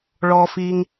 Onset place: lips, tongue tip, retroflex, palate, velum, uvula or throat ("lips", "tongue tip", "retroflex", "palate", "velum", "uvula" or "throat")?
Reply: retroflex